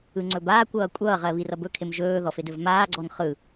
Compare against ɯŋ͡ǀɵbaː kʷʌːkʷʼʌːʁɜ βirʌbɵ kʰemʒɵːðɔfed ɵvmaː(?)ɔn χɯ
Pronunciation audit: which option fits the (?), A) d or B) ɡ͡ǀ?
B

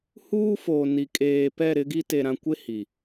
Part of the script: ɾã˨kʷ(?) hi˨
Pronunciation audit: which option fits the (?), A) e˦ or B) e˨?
A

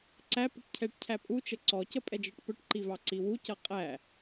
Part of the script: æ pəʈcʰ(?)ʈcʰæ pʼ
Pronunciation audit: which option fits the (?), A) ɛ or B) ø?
A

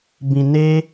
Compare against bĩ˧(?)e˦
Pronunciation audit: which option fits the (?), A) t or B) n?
B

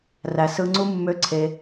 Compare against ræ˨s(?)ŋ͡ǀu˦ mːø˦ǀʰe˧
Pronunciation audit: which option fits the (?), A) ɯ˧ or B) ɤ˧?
A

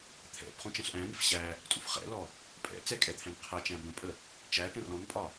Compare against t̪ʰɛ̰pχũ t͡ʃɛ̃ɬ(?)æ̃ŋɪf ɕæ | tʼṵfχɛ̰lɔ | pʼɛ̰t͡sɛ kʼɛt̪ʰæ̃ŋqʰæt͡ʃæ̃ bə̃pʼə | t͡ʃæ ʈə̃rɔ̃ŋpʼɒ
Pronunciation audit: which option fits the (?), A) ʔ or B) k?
A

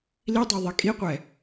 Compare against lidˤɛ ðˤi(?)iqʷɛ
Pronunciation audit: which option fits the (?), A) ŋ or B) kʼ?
B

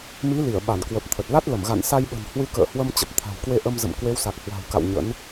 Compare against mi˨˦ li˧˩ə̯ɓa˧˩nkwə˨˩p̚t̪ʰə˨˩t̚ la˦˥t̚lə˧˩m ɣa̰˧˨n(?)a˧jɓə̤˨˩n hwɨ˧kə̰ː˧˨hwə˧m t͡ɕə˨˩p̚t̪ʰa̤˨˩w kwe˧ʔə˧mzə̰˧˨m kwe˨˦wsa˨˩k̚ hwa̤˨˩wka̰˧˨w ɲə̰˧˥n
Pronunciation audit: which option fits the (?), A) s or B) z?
A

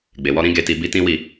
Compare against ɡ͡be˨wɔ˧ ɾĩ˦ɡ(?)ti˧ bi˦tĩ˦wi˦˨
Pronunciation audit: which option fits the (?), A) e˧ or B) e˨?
A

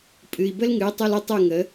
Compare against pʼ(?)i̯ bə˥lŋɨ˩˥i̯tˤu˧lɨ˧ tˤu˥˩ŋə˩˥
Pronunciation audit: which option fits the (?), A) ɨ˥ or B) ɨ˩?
B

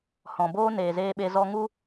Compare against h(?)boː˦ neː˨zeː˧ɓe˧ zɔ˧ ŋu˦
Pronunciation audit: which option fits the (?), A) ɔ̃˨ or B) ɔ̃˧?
A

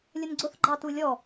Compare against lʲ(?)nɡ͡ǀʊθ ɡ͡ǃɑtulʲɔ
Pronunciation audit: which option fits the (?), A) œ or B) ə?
B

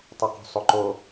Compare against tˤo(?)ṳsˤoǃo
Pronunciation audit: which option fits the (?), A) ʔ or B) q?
B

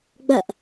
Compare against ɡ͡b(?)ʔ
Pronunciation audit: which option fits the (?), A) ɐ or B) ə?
A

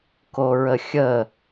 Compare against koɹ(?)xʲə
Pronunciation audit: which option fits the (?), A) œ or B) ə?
B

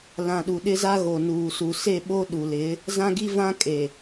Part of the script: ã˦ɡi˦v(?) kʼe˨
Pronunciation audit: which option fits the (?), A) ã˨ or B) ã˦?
B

